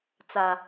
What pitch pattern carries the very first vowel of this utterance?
low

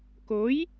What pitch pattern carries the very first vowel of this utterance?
rising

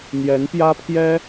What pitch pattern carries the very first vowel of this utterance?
rising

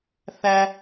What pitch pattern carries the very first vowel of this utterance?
high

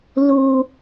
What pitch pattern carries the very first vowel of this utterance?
low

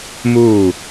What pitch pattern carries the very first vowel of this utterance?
falling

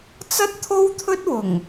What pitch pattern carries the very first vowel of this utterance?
high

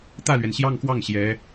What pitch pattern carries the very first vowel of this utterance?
falling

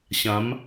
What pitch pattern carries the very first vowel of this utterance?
rising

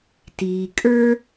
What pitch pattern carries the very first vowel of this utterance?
low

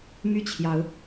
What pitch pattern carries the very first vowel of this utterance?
falling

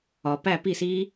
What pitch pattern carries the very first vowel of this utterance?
low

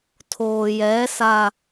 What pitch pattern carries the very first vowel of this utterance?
low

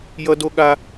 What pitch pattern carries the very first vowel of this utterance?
high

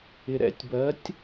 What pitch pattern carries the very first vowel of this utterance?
low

